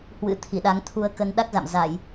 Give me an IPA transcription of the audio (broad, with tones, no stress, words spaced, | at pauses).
hwɨ̰˧˥ t̪ʰi˧˩ɗa˨˦ŋt̪ʰu˧ə̯kə˧n ɗa˦˥k̚za̰˧˨m za˧˩˨j